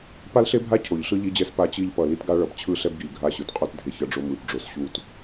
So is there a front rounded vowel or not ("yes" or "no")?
no